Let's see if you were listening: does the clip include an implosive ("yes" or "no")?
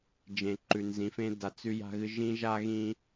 no